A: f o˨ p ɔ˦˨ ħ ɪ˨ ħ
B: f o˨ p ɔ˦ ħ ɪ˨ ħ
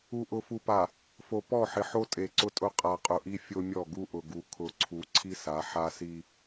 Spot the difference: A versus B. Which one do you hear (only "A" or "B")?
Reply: A